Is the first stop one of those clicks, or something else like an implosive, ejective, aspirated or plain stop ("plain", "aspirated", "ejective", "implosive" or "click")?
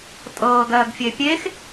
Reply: ejective